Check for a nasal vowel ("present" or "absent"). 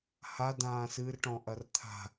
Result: present